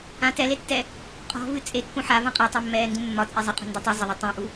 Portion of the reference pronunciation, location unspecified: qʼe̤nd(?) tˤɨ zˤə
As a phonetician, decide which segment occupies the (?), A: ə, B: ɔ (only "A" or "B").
B